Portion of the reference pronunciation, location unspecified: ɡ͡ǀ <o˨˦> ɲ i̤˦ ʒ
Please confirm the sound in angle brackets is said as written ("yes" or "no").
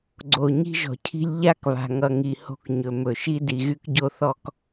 no